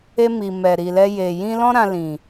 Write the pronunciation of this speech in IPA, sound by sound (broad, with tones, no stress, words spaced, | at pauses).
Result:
e˧ mi˨ mɛ˨ɾi˨lɛ˧je˨ jĩ˧lɔ̃˦ ɾã˧lĩ˨